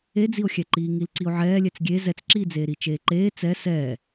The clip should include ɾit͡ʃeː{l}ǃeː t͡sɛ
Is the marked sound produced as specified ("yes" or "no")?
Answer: no